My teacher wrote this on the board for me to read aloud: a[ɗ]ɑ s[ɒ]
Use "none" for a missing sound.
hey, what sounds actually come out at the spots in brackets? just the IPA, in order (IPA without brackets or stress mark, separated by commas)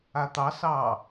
t̪, ɑ